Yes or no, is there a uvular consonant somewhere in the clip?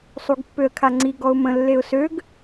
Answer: no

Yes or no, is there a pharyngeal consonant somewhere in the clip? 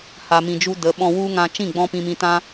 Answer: no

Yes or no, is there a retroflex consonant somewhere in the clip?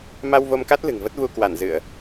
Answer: no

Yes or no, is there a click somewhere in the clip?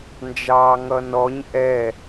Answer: no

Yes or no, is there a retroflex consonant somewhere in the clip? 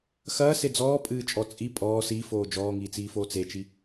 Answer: no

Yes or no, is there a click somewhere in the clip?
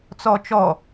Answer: no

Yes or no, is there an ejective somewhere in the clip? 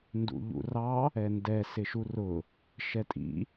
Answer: yes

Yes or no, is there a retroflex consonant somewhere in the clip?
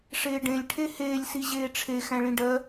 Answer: yes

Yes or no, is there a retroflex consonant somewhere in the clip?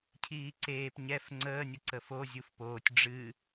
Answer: yes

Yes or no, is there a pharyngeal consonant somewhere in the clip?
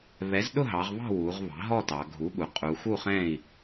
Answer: no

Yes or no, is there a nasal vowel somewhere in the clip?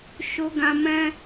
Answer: yes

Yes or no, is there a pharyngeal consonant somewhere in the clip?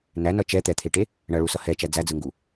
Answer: no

